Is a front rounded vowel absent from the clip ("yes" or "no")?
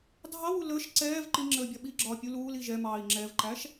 yes